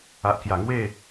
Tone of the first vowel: low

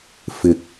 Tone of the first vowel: low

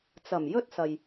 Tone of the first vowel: low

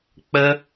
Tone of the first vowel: high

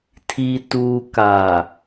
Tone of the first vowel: low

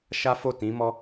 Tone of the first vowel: high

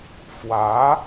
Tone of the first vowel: rising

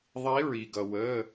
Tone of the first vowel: rising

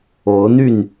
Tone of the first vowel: rising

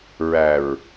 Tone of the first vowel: low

